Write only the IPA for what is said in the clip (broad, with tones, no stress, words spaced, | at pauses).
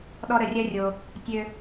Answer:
ɗɔ˦ ɾə˧rʲɜ˦rʲo˧ | tʲø˦